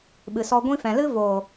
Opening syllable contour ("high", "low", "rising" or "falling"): low